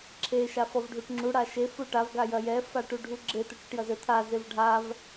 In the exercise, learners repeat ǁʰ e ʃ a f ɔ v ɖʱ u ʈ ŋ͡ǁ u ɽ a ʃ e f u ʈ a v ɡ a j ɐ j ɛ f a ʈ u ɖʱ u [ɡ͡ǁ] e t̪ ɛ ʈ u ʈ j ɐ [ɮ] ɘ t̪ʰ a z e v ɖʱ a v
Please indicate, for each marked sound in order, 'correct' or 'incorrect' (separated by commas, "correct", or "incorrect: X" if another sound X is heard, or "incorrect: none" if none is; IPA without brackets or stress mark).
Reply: correct, incorrect: z